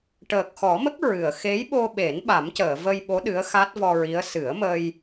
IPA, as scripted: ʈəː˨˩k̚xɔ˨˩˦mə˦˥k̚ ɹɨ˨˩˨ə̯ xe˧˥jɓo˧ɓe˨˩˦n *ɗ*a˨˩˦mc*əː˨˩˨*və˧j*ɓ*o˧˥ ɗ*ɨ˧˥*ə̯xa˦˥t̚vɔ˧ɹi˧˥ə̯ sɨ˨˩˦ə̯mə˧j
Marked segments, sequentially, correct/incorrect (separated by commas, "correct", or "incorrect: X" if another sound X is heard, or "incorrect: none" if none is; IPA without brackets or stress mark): incorrect: ɓ, correct, correct, correct